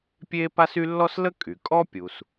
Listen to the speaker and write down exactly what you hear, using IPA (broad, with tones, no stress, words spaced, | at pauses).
pʲe˥pa˥s y˥ lːɔ˥slə˥ kʼy˩ kʼɔ˥pʲu˩s